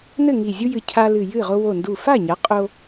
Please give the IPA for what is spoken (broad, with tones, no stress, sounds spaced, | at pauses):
n ɘ˥˩ ŋ i˧˩ zʲ u˦ j ɨ˧˩ cʰ a˦ l ɨ˧˩ j ɨ˥˩ ʁ o˦ w o˧˩ n d u˧˩ f a˥˩ ɲ a˩˥ qʼ o˦